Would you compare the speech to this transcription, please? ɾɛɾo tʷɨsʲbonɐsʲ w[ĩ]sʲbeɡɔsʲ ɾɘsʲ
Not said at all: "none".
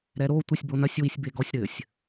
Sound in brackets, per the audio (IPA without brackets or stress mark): i